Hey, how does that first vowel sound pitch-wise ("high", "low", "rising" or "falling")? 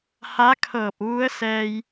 rising